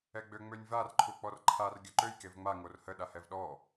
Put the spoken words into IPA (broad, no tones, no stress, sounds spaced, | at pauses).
ɛ ɡ͡b ø ŋ͡m ø nʲ v a r ǃʰ u k͡p ɔ r ǃʰ a r ɡʲ œ ǃ ø j k e v ŋ͡m a ŋ o r h ə ɗ a h ɛ v ɗ ɔ